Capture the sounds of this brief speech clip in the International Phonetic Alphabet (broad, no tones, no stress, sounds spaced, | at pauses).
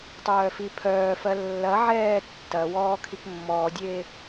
tˤ œː f i pʰ œː f ɜ lː ɐ ʕ ɛː tː ɐ w ɔː kʰ i k mː ɔ dʲ e